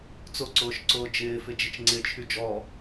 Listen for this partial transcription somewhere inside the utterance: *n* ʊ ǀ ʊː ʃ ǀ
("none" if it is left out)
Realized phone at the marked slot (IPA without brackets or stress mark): t͡s